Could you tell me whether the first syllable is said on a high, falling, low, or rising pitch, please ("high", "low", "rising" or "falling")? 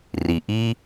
low